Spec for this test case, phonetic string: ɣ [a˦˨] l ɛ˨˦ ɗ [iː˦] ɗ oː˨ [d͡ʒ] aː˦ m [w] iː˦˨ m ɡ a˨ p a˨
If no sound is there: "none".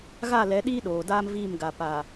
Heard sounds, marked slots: a˦˨, iː˦, d, v

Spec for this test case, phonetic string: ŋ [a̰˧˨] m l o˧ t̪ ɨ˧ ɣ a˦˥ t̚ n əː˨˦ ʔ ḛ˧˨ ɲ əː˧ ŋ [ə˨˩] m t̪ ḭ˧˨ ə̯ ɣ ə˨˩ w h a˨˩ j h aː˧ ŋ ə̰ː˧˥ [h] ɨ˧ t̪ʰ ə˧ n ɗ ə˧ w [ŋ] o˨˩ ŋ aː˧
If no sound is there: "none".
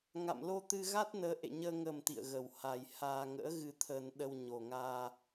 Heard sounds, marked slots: a̰˧˨, ə˨˩, ɣ, ɲ

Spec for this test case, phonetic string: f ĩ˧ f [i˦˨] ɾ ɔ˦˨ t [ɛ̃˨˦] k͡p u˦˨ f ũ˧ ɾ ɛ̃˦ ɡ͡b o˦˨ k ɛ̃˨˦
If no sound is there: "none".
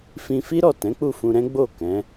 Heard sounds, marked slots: i˦, ɛ̃˨˦

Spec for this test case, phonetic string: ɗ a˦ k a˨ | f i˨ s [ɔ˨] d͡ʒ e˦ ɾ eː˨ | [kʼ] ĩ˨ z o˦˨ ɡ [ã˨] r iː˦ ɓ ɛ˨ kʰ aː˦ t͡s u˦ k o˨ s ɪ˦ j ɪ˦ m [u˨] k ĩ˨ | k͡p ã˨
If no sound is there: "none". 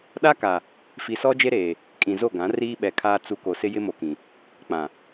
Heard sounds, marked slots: ɔ˦, kʼ, ã˨˦, o˨

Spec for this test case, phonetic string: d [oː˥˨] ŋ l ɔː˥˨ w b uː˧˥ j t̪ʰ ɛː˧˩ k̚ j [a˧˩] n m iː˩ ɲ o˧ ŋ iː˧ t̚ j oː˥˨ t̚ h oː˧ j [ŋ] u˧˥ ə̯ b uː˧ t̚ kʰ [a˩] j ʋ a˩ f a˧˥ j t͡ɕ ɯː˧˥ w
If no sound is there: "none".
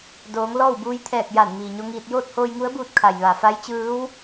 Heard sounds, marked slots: oː˩˧, a˧˩, ŋ, a˩

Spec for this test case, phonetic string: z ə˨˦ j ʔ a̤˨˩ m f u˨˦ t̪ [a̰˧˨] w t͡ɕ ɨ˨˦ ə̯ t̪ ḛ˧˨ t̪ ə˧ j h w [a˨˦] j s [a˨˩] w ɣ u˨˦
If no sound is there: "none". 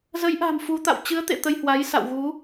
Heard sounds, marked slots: a̰˧˨, a˨˦, a̰˧˨

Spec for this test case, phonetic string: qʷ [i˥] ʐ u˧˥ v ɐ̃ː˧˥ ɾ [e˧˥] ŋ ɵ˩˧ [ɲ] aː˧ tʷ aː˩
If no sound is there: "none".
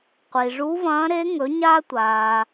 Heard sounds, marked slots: i˩, e˧˥, ɲ

